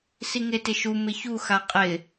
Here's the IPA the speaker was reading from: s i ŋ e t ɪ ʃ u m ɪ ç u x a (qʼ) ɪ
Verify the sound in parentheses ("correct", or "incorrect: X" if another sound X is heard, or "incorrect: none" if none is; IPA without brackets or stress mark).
correct